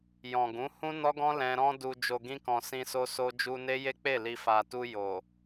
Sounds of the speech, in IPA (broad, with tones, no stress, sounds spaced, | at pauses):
j ɔ̃˨ ɡ ũ˨˦ h ũ˦ n ɔ˦ ɡ ɔ̃˦ l ɛ̃˦ ɾ ɔ̃˦ d u˧ d͡ʒ o˨ ɡ ĩ˧ k ɔ̃˨ s ĩ˧ s o˦ s o˦ d͡ʒ u˧ n e˦ j e˦ k͡p e˦˨ l i˨ f a˨ t u˧ j o˨